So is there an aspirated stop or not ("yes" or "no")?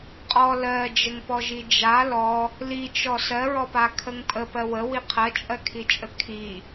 yes